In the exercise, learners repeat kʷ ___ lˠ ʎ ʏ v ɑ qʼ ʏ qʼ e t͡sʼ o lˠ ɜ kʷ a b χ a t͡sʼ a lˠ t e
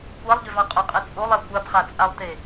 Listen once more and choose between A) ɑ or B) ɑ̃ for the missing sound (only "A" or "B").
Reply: A